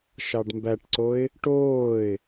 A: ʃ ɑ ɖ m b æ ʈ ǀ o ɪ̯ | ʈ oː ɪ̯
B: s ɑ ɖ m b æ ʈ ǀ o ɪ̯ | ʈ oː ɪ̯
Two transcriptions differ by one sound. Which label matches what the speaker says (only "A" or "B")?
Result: A